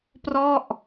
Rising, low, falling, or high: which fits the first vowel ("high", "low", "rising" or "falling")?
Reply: falling